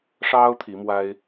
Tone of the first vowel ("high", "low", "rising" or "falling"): high